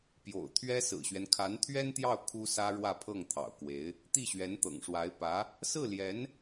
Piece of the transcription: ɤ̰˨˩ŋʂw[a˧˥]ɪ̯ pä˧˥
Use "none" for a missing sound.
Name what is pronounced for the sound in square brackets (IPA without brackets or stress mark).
a˧˥